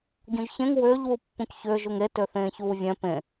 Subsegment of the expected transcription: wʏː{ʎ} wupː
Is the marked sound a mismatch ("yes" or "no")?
no